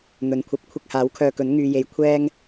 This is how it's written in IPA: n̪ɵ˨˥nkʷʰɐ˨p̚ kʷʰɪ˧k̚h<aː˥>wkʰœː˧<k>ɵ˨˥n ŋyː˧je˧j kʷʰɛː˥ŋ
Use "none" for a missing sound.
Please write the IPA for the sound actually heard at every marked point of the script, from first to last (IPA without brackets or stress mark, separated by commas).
aː˨˥, k